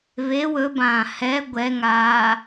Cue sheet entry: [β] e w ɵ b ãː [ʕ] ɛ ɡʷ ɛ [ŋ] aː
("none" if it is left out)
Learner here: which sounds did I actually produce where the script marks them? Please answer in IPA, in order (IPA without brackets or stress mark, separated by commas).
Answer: β, h, ŋ